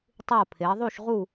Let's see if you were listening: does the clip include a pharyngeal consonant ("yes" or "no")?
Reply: no